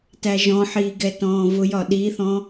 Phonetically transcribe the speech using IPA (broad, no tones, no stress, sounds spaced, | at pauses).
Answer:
t æ ʒ ɔ̃ ħ iː ɡ ɛ t ɔ̃ː v ʊ j ɒ ɗ i θ ɔ̃